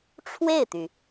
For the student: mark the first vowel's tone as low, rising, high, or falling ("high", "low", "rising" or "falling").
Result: falling